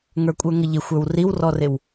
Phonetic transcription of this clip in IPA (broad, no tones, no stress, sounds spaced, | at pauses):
ŋ ə˞ kʷʼ ə˞ ŋ ə ʎ ɪ xʷ ə˞ w r i w r ɔ r ɪ w